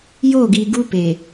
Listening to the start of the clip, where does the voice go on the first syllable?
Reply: falling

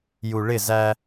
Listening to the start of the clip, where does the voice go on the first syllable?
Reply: low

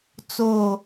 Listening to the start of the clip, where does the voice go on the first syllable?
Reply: falling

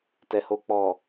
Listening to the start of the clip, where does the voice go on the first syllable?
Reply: low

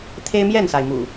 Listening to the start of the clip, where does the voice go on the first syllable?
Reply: high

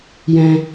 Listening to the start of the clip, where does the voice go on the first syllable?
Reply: low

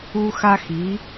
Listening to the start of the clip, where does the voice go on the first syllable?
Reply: high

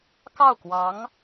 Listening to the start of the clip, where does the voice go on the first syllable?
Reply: falling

